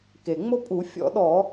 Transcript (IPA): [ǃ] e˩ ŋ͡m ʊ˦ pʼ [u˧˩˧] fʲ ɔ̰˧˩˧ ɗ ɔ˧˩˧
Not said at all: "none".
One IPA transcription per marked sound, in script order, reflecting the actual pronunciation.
k, u˧˩˧

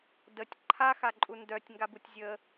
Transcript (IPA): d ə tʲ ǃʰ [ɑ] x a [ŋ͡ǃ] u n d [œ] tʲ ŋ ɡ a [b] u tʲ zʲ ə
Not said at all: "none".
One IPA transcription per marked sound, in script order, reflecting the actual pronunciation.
a, ǃʼ, œ, b

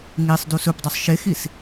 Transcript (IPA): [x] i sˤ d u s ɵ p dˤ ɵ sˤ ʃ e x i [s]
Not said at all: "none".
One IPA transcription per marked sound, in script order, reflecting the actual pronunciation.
ŋ, s

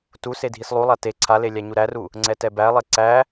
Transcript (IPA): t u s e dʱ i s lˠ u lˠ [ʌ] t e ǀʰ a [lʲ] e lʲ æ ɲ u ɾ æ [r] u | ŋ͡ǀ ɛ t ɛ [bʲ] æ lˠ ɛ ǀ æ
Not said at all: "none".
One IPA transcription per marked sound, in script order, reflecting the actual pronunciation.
a, l, r, b

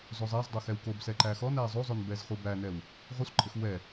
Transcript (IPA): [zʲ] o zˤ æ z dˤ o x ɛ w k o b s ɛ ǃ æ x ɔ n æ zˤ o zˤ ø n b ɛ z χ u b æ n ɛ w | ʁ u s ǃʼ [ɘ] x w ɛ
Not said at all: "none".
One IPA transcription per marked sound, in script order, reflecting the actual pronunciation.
z, ɘ

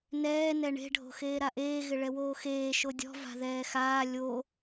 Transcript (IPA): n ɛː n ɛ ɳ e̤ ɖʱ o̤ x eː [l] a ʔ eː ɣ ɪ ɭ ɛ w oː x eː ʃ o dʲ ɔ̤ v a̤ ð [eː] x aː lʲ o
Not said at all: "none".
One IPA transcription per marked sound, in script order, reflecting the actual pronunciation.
ɾ, ɛː

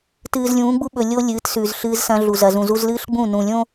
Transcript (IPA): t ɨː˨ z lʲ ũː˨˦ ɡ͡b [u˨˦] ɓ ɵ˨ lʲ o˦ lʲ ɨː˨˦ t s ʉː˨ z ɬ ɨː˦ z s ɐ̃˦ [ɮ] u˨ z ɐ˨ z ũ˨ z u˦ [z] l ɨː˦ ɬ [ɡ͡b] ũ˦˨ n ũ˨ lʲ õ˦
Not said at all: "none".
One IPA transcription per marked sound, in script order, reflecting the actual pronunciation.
u˦, ɮ, z, ɡ͡b

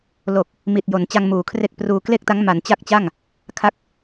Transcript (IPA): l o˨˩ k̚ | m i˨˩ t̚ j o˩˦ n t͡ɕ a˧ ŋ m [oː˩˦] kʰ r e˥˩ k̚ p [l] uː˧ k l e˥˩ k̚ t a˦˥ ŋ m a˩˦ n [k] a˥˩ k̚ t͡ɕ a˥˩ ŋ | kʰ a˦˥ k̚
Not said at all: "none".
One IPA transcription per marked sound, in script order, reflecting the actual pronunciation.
uː˩˦, r, t͡ɕ

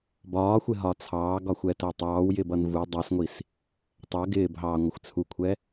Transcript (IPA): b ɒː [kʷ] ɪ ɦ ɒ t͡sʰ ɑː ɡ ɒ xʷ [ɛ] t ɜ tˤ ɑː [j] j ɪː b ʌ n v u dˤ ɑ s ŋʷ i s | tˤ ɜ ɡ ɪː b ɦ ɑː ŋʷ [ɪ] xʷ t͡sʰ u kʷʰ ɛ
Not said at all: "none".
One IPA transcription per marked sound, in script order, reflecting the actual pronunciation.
xʷ, ɛ, w, ɪ

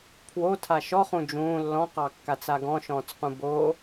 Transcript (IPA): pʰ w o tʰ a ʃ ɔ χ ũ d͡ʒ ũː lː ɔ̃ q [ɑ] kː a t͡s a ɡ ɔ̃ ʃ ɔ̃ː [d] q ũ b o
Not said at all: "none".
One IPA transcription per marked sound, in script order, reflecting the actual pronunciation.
ɑ, t͡s

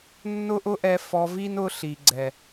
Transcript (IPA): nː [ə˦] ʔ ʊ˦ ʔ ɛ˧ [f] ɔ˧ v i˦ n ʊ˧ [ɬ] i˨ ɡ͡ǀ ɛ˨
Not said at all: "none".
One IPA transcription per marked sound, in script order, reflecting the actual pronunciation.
ʊ˦, f, ɬ

